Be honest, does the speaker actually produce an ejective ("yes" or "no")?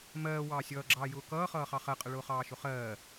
yes